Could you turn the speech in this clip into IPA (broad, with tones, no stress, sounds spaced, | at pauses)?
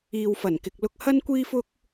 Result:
iː˨ w f ɐ˨˩ n k ɪ˨ k̚ l ʊ˧ k̚ h ɐ˥ n kʷ iː˥ f ʊ˥ k̚